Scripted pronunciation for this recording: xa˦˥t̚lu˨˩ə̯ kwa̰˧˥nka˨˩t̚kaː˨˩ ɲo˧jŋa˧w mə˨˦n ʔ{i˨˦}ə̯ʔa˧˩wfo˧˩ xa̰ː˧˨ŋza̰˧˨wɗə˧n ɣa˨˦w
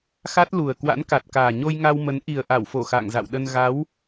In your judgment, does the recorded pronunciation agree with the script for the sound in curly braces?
no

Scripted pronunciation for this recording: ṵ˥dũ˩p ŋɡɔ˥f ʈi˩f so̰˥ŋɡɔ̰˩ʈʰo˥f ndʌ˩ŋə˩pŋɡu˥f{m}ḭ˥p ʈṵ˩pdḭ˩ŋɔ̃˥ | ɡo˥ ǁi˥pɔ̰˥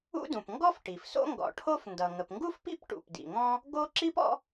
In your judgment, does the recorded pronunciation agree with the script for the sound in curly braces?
no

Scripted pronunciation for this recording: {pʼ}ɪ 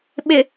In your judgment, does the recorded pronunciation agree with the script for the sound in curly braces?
no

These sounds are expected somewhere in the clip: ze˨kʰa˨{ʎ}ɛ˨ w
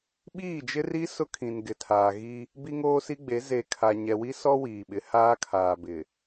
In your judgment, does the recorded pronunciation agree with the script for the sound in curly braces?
no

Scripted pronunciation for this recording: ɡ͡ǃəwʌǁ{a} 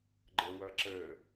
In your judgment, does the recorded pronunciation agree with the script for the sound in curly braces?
no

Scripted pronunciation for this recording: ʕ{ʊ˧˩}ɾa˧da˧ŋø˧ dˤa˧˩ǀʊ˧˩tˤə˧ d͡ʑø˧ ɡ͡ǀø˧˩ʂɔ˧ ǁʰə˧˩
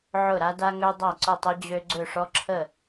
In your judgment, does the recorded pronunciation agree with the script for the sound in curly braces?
yes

